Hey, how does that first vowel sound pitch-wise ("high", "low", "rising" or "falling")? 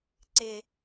low